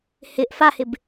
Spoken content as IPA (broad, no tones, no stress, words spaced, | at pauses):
hɪʔ fahɪb